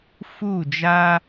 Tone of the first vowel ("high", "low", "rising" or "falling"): falling